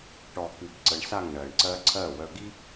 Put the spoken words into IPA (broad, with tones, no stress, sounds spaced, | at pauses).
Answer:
ʈ ɔ˨ k ɨ˨ b ǀ ə˨ ɳ s a˦˨ ŋ ɳ ɜ˨ ɳ ǀ ɜ˦ ǀʰ ɜ˦˨ w œ˨ ɡ i˦